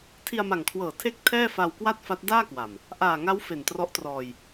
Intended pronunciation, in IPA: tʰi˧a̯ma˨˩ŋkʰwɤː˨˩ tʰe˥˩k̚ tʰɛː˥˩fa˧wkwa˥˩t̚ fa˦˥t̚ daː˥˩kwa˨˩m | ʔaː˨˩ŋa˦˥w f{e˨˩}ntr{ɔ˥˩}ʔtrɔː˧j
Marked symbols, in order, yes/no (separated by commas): yes, no